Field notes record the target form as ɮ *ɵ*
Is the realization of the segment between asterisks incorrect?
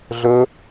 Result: no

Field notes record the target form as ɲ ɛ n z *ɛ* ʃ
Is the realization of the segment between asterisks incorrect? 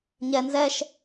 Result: no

